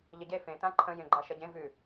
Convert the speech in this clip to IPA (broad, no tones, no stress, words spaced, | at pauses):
ʎəɟe fẽ tãǃʰə̃ jẽɡ͡ǃaʃɐɟẽ vʉ